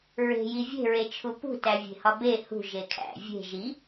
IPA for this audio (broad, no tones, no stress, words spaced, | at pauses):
ɹe̤ji vʲe̤ɹet͡ʃʰu pṳtævʲe̤hɒ be hṳ ʒekʰæ̰ vʲe̤ ʒi